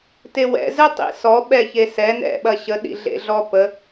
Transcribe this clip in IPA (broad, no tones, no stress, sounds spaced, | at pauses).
t e w ɛ̰ z ɛ tˤ ḭ s ɔ ɓ ɛ ç e s ɛ n ɛ̰ ɓ ɐ ɕ ə ɗ ḭ ɮ ḛ ɮ ɔ p ə